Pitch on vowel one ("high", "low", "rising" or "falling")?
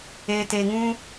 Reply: low